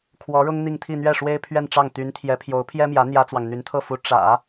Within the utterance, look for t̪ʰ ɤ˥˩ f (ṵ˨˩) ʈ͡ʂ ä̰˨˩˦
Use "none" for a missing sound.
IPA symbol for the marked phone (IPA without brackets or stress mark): u˧˥